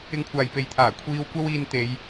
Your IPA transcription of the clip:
ɪ˧ ŋ kʷʰ aː˨ j p e˨ j t̪ʰ aː˨˩ kʷʰ iː˧ w kʷ ɐ˥ w iː˧ n t̪ e˨˧ j

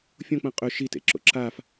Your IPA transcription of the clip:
fʲ õ k͡p ɐ̃ qʼ ɵ ʃ i t ḛ ǁ o̰ ǁ a f

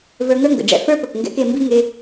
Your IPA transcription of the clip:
v ə˞˧ ŋ ə˞˦ ŋ ɡ ə̰˨ ɖ͡ʐ ɛ̰˧ f ə˞˦ p ə˨ k ŋ ɡ ɛ̰˦ k e˧ m b i˦ ŋ e˧

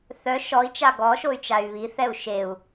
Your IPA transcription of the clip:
θ œ ʃ ɔ i̯ t͡ʃ a ɡ ɔ ʃ o y̯ t͡ʃ a y̯ β i θ ɛ u̯ ʃ e u̯

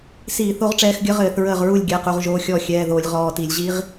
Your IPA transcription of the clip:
s iː˧˩˧ θ o˧ ʁ ʈ͡ʂ ɛː˧ x ɡʲ ə˧˥ ʁ ɘː˧˩˧ θ ɹ əː˥˩ ʁ ɹ u˥˩ lʲ ɡʲ ɛ˩˧˩ q u˩˧˩ ʁ ʒ oː˩˧˩ xʲ ɔː˥˩ xʲ ɛː˩˧˩ ð oː˧˩˧ lʲ ʁ ɔː˩˧˩ t i˧˩˧ lʲ ʑ iː˧˥ ʁ

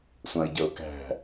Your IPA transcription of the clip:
sʷ ɑ̃ ɪ̯ ɟ ʌ ʊ̯ k æ̤

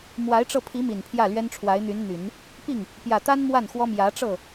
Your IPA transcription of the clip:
m w a˧˥ ɪ̯ ʈ͡ʂ ɤ˧ pʰ i˧˥ m i˨˩ n pʰ j ä˥˩ l ɥ ɛ˥ n ʈ͡ʂʰ w a˧˥ ɪ̯ n̪ y˧˥ n n̪ y˨˩˦ n | p i˥˩ ŋ | p j ä˨˩ t̪ a˥ n m w a˥˩ n x w ɔ˥ m j ä˧˥ ʈ͡ʂ ɤ˥˩

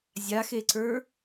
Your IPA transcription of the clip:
zʲ a x e ǀ ə˞

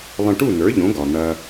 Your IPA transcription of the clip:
lˠ ə̃˧ ʈ u˥˩ n ə˞˩˥ ʎ õ˩˥ ɡ ɒ˩ n̪ ɐ˧

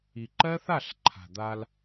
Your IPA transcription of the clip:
i˨ ǃ ɜ˦ θ a˦˨ ɬ ǃʰ a̤˨ d̪ a˧ l

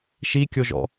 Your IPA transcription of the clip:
ʃ i kʲ o ʒ ɔ̰

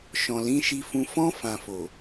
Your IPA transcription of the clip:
ʃ ɔ̃˨ l ĩ˨˦ ʃ i˧ f ũ˧ f ɔ̃˧ f ã˨ f o˨

